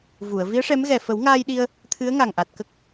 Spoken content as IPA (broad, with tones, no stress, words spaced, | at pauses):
vu˨˩˨ə̯ vi˧˥ə̯ʂɛ˧˥mɣɛ˨˩ fə˨˩˦wŋaː˧jɗi˧ə̯ | t̪ʰɨ˧˥ə̯ŋa˨˩ŋʔa˨˩t̚kə˦˥k̚